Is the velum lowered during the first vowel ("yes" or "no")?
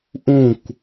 yes